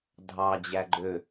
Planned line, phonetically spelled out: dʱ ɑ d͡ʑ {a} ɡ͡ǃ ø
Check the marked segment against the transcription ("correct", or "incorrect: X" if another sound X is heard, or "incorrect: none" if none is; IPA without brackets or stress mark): incorrect: æ